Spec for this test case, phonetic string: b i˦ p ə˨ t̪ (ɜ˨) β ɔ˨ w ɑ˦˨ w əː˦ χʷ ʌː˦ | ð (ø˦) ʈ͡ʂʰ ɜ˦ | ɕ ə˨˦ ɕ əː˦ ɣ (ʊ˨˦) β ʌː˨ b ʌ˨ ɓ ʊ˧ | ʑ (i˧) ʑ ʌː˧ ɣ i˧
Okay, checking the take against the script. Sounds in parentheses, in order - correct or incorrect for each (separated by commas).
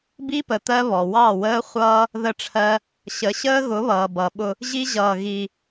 incorrect, incorrect, correct, incorrect